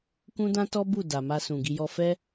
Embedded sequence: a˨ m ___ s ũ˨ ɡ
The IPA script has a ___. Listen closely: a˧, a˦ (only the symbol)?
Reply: a˧